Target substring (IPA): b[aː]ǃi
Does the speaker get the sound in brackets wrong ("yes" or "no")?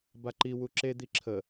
yes